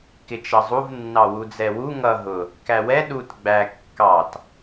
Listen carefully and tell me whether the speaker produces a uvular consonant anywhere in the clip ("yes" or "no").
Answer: no